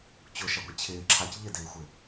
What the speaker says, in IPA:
t͡ɕ ʊ ʃ ɛ ɡʷ ɛ t͡ɕʰ ɪː ǁʰ a c ʎ ɪ d ɪː xʷ ɪ

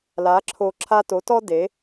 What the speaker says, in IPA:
l a˩˥ ǁʰ o˧ ǁʰ a˥ t o˩˥ t ɔ˥ d e˩˥

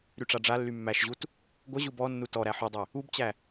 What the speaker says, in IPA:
ɾ y ʈ͡ʂ a ɖ͡ʐ a lː y mː æ ʃ ʑ u t | ɡʷ ə ʑ u b ɔ nː u t ɔ ɾ æ ħ u dˤ e | u b t͡ɕ æ

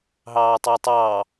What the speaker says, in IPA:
ɦ ɑː tˤ əː tˤ ɑː

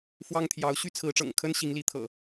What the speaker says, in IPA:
f w ɑ˦ ŋ t̪ʰ j ɑ˨˦ ʊ̯ ɕ y˦ t͡sʰ ɹ̩˨˦ ʈ͡ʂ ɤ̰˨˩ ŋ kʰ ə˦ n ɕ i˨˦ ŋ l i˨˦ t̪ʰ ɤ̰˨˩

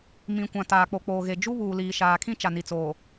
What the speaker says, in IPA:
m ĩ˨ kʷ ã˨ t aː˨ k͡p o˨ k͡p oː˨ ɣ e˨ d͡ʒ u˦ β uː˨ l iː˨ ʃ aː˨ kʰ ĩ˦ t͡ʃ a˨ n i˨ t͡s oː˨

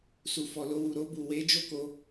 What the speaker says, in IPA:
s u˨ f ɔ˨ l o˧ w u˨ ɾ o˧ b u˨ w e˨˦ d͡ʒ o˦ k o˧

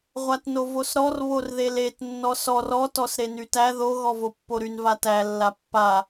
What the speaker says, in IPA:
ʁʷ a t n o v o s ɾ ɔ r β o r ð e l e t nː ɔ s ɔ r ɔ t ɔ s ɾ e n y t æ ð o ɣ ɔ v o pː o ɾ y n v a t æ lː a pː a

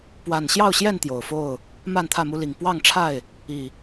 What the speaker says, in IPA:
p w a˨˩ n ɕ j ɑ˥˨ ʊ̯ ɕ j ɛ˥˨ n t̪ j o˨˩ ʊ̯ f o˥˨ ʊ̯ | m a˥˨ n t̪ʰ ä˥˨ m u˦ l i˨˩ ŋ p w ɑ˥˨ ŋ ʈ͡ʂʰ a˥˨ ɪ̯ | i˨˩

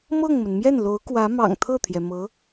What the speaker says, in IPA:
m ɤ˥˩ ŋ m ə˩ n m j ɛ˥˩ n l o˧˥ ʊ̯ k w ä˧˥ m ɑ̰˨˩ ŋ t̪ʰ ɤ˥˩ t̪ʰ j ɛ˩ m ɤ˧˥

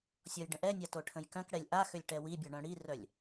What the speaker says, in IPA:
sʲ ɔ j ɖ ə̃ ʔ ɛ nʲ a t o ʈʰ ə̃ j k œ̃ k ɽ ɛ lʲ ʔ a x ø lʲ ʈ ɛ w i bʲ ɔ ɳ œ̃ ɽ i r œ lʲ

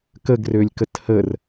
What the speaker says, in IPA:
k ə ɡ r ø lʲ k ə t h ə r

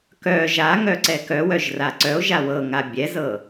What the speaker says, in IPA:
k œ ʒ a ŋ œ ǀ ɛ k œ w œ ʒ r a ǀ œ o̯ ʒ a w ɤ ŋ a bʲ ɛ z ɤ

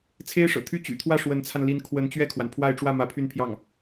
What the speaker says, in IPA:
t͡sʰ e˥ ɪ̯ ʂ ɤ̰˨˩ t̪ʰ y˥ t͡ɕ y̰˨˩ t̪ʰ w ä˥˩ ʂ w ə˧˥ n t͡sʰ a˧ n l i˧˥ n kʰ w ə˧˥ n t͡ɕ ɥ ɛ˥˩ kʰ w a˩ n pʰ w a˥˧ ɪ̯ ʈ͡ʂ w ä˥˩ m ä˧˥ pʰ y˥˧ n pʰ j ɑ˥˩ ŋ

